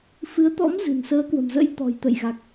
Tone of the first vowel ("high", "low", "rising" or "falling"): rising